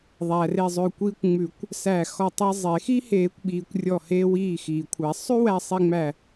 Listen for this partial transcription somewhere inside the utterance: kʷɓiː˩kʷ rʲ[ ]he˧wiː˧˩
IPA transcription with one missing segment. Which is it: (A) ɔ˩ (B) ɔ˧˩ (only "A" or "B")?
B